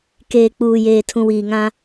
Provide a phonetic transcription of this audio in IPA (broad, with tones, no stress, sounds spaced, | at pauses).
k eː˨ k͡p uː˨ j eː˨ tʰ ũ˨ w iː˨ ŋ ã˦